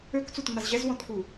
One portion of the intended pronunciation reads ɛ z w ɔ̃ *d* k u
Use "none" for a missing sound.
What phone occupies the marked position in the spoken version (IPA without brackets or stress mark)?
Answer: t